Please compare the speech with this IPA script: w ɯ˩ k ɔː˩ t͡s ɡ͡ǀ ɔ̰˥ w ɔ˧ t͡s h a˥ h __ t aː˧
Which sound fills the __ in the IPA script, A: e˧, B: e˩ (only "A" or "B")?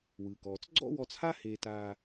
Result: A